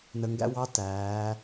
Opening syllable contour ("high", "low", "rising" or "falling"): low